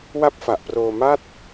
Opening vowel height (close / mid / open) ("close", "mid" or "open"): open